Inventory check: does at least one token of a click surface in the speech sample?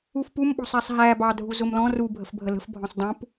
no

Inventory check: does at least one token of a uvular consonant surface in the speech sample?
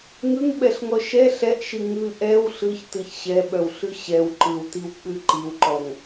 no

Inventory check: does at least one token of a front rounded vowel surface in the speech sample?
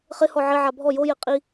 no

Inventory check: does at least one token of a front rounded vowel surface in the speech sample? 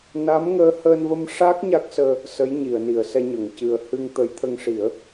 no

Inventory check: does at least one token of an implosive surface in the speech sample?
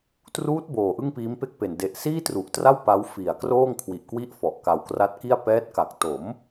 no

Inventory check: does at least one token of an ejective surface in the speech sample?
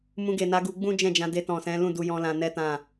no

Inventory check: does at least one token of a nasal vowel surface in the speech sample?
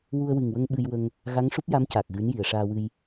no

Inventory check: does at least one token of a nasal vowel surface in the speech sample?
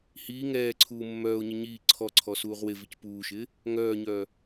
no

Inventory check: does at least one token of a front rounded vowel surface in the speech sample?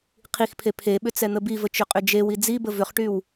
yes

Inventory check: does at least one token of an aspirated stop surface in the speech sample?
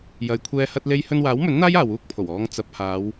yes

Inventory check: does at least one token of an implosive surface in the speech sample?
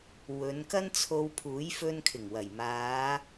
no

